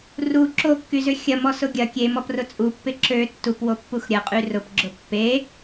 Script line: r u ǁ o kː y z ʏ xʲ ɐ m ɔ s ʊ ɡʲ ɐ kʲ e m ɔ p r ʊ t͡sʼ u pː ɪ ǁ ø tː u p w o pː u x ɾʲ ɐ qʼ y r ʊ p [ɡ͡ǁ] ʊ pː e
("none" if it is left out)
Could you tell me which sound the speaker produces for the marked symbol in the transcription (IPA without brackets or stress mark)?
ɡ͡ǁ